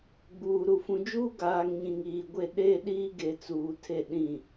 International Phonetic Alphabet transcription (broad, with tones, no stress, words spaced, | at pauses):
ɡ͡buː˨ɾu˨ fũ˨d͡ʒuː˦ɡaː˨ŋ ɲĩ˨ŋiː˨ɡʷe˦˨ ɗe˦ɗiː˦ɡe˨ t͡suː˨tʰe˦˨ɗĩ˦˨